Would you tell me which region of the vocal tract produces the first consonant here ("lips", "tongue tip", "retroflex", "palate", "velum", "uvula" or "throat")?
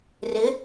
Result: tongue tip